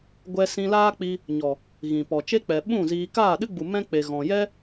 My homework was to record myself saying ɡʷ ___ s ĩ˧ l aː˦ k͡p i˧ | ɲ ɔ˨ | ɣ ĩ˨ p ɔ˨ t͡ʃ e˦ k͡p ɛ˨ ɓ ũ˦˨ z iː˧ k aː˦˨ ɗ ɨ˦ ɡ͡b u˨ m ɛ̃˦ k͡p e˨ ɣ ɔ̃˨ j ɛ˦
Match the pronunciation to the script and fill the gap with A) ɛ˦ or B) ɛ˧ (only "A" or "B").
B